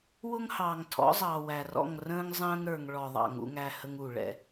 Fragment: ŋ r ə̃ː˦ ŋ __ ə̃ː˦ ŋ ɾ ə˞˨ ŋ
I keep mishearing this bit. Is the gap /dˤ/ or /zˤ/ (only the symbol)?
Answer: zˤ